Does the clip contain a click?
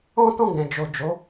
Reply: no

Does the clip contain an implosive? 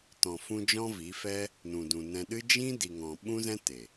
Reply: yes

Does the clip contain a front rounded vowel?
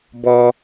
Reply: no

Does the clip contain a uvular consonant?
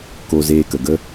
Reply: no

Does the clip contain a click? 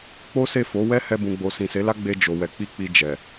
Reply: no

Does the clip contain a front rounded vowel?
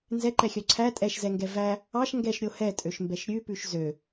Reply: yes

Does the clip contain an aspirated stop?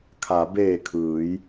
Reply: yes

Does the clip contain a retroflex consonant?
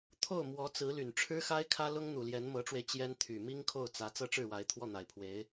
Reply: yes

